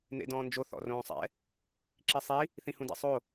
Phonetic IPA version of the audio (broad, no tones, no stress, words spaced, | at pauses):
n̪ḛdɔ̃ːnd͡ʒo θɔ̰rõːsˤɛ̰ | ǁisˤi | θĩhũdɛ̰sˤo